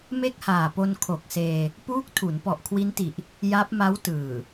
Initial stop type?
plain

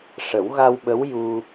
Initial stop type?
implosive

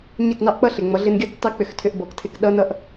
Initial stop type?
plain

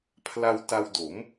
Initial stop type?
aspirated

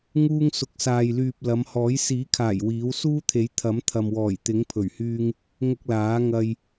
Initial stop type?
plain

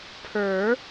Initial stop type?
aspirated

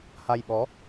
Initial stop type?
implosive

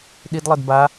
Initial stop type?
implosive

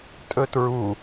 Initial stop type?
ejective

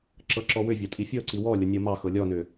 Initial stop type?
click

